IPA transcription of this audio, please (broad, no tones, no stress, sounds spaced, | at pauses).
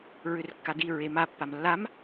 ɹ ʏ r kː a d i ɹ e m a pː a m lː a m